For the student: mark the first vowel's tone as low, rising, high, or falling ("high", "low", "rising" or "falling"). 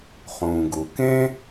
low